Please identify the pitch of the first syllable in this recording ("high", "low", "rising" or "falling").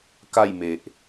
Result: falling